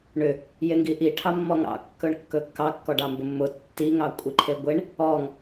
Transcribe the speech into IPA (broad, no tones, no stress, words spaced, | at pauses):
ɳʏ | jeŋɡiʔi ʈʰɑmːɔŋɑ̰ kːɵɳkːɵkːɑ kːɔɖɑmbʊmːʊ tːi ŋɑkʷʼiǃʰeɡʷeɳ | ɔŋ